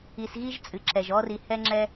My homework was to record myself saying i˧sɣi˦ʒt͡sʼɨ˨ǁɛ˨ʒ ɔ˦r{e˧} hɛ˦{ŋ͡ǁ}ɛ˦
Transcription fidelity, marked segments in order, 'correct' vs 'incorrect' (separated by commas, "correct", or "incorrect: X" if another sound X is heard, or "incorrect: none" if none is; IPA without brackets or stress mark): incorrect: i˧, correct